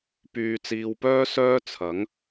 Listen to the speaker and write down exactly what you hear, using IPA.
p yː˨ t͡s iː˨ w p œː˥ s œː˥ t͡sʰ ɐ˨˥ ŋ

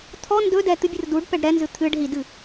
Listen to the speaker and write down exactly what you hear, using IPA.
t̪ʰ ɔ n d ɵ d ɛ t̪ ɨ bʲ ɨ r d u ɖ p ɛ ɖ ɾ ɛ n z ɨ t̪ʰ ɨ ɖ ɦ i d ɨ

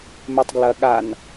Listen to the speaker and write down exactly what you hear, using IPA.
m e tˤ ɡ l ɐ ɠ a n

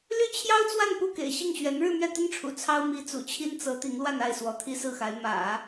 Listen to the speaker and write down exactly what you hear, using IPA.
l y˥ t͡ɕʰ j ɑ˥ ʊ̯ t͡s w a˥˧ n p u˥˩ k ḛ˨˩ ɪ̯ ɕ i˥˩ ŋ ɕ ɥ ɛ˧˥ n ɻ ɻ̩˥˧ m ɥ ɛ˥˩ t̪ ə˥ n ʈ͡ʂʰ ṵ˨˩ t͡sʰ ɑ˥ ʊ̯ m i˧˥ t͡s ṵ˨˩ t͡ɕʰ i˥ n t͡s ɤ˧˥ t̪ i˧˥ ŋ l w a˥˧ n a˥˩ ɪ̯ s w ɔ˧˥ t̪ʰ i˥ s ɹ̩˥˩ x a˧˥ ɪ̯ m ä̰˨˩˦

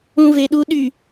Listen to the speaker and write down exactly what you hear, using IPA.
ũ v e ɗ u ɗ y

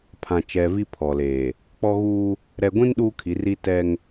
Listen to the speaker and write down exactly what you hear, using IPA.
pʰ ã˨ t͡ʃ ɛ˨ v i˦ pʰ ɔ˨ l eː˨ | k͡p ɔ˦ ɣ uː˦ | ɾ ɛ˨ ɡʷ ĩ˦ n ɗ uː˦ kʰ i˨˦ r i˦ t ɛ˦ ŋ

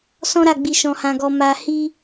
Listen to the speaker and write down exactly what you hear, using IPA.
s ɔ̃˦ ɾ a˦˨ ɡ͡b i˧ ʃ ɔ̃˧ h ã˧ ɡ ɔ˧ m a˧ h i˦

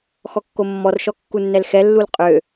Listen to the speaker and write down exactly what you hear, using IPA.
x ɔ kː o mː ɔ r ʃ ɔ kː u nː ɛ l x ɛ lː u l qʼ ø

